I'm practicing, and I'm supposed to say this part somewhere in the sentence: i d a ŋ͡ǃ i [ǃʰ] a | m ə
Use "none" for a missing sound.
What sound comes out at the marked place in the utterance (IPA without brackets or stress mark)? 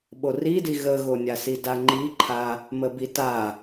ǃʰ